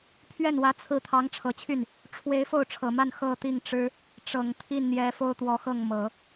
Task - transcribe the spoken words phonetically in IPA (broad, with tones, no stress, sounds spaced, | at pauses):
pʰ ɥ ɛ˥˩ n w ä˧˥ t͡sʰ ɹ̩˧˥ t̪ʰ ɑ˧˥ ŋ ʈ͡ʂʰ ɤ˨˩ t͡ɕʰ y˥˩ n | ʈ͡ʂʰ w e˧˥ ɪ̯ f o˥˩ ʊ̯ ʈ͡ʂʰ ɤ˨˩ m a˥˧ n x ɤ˥˧ t̪ i˥˩ ŋ ʈ͡ʂ ɻ̩˥ | ʈ͡ʂ ɤ˨˩ ŋ t̪ʰ i˥˩ n n̪ j ɛ˧˥ f o˥ ʊ̯ t̪ w ɔ˧˥ x ɤ˥˩ ŋ m ɤ˨˩˦